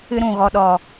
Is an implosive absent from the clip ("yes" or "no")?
no